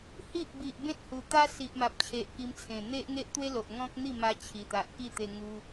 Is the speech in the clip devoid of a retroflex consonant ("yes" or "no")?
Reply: yes